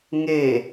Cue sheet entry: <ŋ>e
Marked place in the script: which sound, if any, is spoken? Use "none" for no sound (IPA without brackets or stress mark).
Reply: ŋ